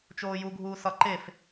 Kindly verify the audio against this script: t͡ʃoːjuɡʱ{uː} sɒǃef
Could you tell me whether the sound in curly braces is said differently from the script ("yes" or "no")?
no